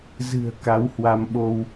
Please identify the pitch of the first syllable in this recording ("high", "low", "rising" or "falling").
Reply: low